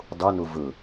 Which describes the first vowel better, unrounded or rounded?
rounded